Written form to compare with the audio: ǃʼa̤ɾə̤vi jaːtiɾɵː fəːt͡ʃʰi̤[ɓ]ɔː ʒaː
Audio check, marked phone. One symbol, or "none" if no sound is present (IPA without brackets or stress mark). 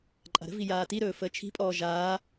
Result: pʼ